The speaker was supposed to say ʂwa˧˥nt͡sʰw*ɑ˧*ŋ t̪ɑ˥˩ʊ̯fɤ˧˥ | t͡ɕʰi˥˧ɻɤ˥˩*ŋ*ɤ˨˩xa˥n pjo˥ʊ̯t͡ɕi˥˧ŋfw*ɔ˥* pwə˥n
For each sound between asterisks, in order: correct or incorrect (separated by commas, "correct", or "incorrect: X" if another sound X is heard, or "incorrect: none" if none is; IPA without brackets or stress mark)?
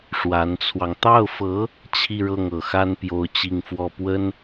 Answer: correct, correct, incorrect: ɔ˥˩